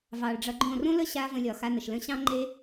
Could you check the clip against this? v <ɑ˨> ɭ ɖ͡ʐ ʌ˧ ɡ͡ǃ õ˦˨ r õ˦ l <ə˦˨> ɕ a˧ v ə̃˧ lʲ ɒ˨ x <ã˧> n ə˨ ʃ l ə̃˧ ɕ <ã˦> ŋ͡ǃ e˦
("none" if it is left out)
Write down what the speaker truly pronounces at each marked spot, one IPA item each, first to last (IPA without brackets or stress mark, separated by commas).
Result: ɑ˨, ə˦, a˧, ɑ̃˦